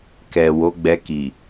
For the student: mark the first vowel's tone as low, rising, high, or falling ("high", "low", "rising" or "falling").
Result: low